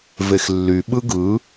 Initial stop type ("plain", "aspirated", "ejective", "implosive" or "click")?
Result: implosive